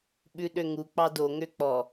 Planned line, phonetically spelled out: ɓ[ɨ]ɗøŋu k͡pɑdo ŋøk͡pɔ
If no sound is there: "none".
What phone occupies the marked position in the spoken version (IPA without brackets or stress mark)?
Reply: ʉ